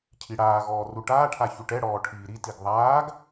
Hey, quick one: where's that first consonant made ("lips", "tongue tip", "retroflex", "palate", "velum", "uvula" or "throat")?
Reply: palate